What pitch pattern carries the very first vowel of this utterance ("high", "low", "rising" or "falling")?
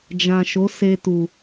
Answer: low